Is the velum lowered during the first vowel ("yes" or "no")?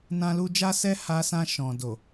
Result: yes